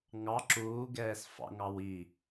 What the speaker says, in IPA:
ŋ ɑ ǁ uː ɡ ɛː s f ɑ̰ ŋ ɑ w i

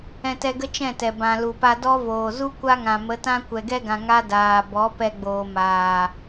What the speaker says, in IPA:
ɛ̃˧ t ɛ˧ ɡ ə˦ t͡ʃ ɛ̃˦˨ t ɛ˨ b ã˨ l u˨ p a˧ d ɔ˦ v oː˨ z u˦ kʷ a˦ ŋ ã˨ m ə˨˦ t ã˦ kʷ ɛ˨ ɡ ɛ˧ ɡ ã˨ ŋ a˦ d aː˨ b ɔ˨˦ p ɛ˧ ɡ͡b oː˨ m aː˨

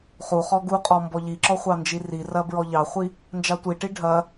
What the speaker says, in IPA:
χ u χ ɔ ɡ u qʼ ɔ m b ɔ ʎ i ǁ ɔ χʷ ɑ n d͡ʒ i r i r ɐ b ɹ ɔ ʎ ɑ χʷ i | n d͡ʒ ɑ tʷ i ʈ i ɖʱ ɐ

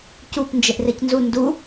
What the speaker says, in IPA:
c u p n d͡ʒ e ʔ r e c n z u n d u

